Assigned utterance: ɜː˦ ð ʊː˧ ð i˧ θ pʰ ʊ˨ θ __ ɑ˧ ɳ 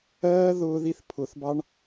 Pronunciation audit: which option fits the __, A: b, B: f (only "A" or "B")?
A